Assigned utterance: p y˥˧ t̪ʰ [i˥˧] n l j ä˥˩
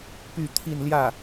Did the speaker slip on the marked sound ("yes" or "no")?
no